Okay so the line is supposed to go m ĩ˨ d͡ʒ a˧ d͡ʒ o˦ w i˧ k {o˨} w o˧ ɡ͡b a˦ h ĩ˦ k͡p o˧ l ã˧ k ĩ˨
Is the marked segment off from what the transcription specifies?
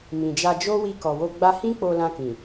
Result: yes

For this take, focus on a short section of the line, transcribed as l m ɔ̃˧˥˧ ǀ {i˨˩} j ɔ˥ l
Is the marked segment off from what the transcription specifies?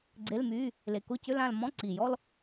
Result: no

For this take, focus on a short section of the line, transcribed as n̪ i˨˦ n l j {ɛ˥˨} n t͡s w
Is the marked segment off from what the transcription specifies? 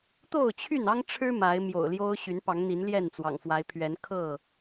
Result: no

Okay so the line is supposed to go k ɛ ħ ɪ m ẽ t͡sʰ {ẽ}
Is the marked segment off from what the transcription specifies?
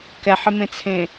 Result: no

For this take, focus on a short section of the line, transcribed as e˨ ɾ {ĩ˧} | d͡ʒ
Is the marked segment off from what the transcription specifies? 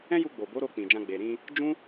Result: no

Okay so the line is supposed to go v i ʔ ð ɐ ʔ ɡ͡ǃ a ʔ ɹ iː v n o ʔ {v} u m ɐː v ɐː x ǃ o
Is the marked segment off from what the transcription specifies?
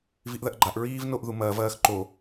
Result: yes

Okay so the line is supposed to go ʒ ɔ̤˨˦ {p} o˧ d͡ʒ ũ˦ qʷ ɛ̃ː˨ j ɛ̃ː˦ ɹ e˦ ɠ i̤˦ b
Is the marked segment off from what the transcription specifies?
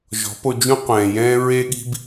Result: no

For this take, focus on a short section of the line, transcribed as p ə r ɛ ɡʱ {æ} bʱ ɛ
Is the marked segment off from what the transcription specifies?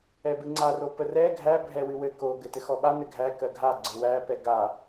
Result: no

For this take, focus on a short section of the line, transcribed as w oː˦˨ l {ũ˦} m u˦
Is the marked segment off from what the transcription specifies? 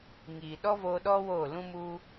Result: no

